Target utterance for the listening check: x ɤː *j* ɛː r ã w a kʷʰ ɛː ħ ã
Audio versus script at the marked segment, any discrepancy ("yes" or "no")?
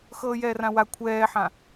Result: no